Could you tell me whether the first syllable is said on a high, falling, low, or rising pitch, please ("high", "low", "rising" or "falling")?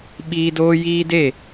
high